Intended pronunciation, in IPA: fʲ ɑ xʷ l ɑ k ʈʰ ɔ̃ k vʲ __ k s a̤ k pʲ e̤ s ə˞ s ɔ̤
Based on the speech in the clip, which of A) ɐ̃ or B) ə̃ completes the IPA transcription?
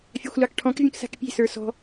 B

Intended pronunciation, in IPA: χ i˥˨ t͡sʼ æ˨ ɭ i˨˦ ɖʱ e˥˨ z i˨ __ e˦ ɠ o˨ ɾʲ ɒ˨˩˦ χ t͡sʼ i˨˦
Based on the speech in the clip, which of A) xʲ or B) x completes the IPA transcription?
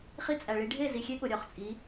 A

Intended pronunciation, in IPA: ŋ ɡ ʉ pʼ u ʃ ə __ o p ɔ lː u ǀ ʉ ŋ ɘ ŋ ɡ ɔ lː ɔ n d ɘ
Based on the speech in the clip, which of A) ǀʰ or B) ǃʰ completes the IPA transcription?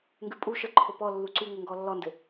B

